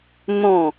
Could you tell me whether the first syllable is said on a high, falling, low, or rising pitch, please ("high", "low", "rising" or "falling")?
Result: falling